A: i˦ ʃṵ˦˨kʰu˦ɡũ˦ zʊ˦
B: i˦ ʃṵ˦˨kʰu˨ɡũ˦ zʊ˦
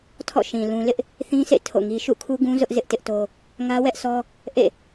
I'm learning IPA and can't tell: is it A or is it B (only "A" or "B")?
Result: A